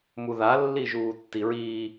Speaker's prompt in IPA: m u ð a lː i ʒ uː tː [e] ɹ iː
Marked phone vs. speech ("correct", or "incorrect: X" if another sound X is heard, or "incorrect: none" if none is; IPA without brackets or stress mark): incorrect: i